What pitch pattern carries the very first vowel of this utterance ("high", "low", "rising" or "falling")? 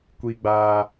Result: high